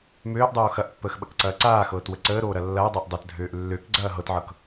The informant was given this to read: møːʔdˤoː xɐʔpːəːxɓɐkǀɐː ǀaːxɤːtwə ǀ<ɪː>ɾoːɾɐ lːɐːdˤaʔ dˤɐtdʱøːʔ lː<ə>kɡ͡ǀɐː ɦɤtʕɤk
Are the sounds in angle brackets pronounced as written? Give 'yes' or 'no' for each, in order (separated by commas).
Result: no, no